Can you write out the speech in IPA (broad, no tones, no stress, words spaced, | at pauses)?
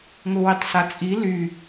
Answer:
ŋʊwitˤsat͡sʼi ly